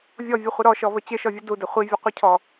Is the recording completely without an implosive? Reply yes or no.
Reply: yes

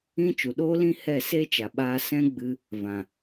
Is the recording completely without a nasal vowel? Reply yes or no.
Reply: no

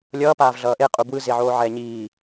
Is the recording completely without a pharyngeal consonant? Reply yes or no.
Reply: no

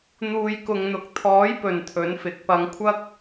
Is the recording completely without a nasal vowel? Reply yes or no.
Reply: yes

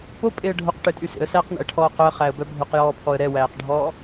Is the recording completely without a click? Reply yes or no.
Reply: yes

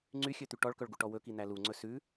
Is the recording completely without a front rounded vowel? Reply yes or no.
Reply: no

